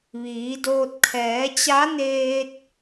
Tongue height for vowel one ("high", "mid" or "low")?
high